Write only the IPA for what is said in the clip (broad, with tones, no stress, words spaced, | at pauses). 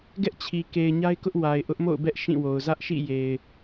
ɡɛ˦ʔt͡ɕʰi˨ ke˨ɪ̯ɲa˦ɪ̯kʊ˦ʔ wa˨ɪ̯ ʔʊ˦ʔmo̰˦˨ʊ̯bɛ˦ʔ ʃĩ˦˨wo˨ʊ̯ zä˦ʔʃḭ˦˨ je˨ɪ̯